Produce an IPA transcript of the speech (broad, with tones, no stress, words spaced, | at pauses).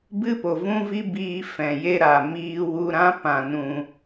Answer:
bɨ˦po˨vũ˦vi˦ biː˦ fɛ̃˨je˦ ɾa˨miː˦ wu˧ɾã˦ pã˧nũ˧